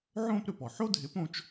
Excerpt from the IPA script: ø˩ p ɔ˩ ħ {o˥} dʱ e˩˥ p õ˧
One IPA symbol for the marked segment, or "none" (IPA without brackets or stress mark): o˥